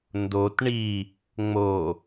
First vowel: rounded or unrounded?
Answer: rounded